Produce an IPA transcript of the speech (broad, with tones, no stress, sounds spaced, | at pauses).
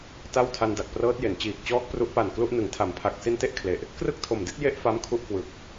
t a˥˩ w tʰ a˧ n d a˨˩ k̚ p r ɤː˦˥ t̚ j e˩˦ n t͡ɕ iː˨˩ k̚ t͡ɕ ɔː˦˥ k̚ p r u˦˥ ʔ p a˨˩ n k l u˥˩ ʔ n ɯ˩˦ ŋ tʰ a˩˦ m pʰ a˨˩ k̚ s i˧ n t e˥˩ ʔ kʰ l e˨˩ ʔ | k r ɯ˥˩ k̚ tʰ o˨˩ m d i˥˩ t̚ j e˥˩ ʔ f a˦˥ m kʰ u˦˥ ʔ k w ɯ˨˩ k̚